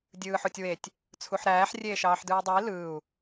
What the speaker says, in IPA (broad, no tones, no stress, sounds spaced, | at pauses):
dʲ ɯː ħ o tʲ w e tʲ | t͡sʰ u ħ ɾ æː ħ rʲ eː ʃ ɑː ħ d ɯː dˤ ɯ i̯ l ɯː u̯